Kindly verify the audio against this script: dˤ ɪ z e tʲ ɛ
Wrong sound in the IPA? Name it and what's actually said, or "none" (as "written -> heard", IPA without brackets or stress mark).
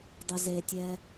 none